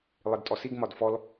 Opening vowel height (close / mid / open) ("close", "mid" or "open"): close